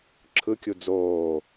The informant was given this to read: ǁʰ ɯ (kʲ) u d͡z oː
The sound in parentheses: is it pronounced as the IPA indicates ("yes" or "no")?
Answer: yes